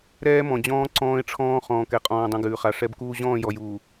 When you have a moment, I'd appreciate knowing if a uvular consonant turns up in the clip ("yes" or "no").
yes